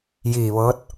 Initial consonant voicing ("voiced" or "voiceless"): voiced